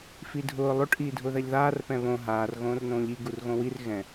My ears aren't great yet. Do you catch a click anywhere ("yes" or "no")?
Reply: no